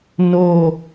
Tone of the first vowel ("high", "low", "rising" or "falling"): falling